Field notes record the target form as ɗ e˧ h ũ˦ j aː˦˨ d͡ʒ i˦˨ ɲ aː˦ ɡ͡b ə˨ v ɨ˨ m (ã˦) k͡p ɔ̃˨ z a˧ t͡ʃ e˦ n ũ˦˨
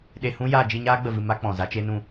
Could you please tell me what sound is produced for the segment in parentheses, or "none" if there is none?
a˦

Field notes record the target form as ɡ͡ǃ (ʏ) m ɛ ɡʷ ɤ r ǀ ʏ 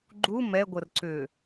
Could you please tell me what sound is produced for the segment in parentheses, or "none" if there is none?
u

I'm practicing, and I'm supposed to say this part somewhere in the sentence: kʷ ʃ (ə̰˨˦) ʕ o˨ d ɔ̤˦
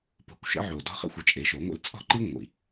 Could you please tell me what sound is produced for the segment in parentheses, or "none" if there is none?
ə̰˨˦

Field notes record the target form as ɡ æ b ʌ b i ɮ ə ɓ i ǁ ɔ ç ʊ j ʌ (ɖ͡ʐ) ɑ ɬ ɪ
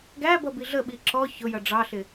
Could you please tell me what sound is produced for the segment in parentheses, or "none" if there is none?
ɖ͡ʐ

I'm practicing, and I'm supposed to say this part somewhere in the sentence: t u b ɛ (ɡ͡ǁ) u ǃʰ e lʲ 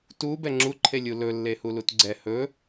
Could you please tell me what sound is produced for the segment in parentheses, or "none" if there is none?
ŋ͡ǁ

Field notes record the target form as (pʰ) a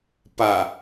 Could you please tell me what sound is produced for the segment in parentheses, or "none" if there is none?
p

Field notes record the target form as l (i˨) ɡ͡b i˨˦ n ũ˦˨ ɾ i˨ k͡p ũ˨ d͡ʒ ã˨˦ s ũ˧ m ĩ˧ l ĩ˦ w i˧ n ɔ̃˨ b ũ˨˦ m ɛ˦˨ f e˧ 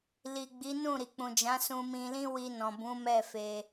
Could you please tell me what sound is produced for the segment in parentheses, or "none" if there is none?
i˨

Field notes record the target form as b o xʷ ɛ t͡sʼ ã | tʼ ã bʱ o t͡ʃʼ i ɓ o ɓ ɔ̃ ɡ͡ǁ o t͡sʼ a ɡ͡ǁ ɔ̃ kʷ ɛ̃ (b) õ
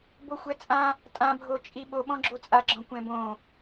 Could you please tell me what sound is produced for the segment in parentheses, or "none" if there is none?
b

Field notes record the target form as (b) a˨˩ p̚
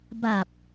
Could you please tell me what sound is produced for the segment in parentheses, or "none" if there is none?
b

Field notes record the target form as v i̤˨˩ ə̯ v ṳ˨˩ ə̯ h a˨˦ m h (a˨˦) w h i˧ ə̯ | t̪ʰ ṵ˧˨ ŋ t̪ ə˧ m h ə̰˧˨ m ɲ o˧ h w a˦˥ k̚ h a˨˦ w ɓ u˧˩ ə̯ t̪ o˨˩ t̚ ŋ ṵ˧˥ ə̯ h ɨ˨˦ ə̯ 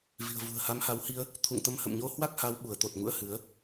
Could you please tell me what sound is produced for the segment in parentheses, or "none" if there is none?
a˨˦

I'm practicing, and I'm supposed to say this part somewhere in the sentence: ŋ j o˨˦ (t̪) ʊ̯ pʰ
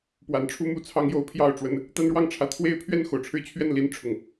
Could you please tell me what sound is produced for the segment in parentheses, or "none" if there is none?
none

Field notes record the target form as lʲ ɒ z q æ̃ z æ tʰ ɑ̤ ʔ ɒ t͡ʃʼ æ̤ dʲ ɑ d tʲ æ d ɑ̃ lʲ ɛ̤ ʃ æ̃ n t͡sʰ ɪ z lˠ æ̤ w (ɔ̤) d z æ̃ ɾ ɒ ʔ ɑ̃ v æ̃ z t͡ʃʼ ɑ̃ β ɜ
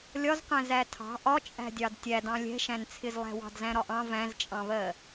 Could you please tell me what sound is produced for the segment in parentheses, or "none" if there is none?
ɑ̤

